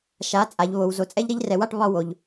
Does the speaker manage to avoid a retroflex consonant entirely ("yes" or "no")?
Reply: no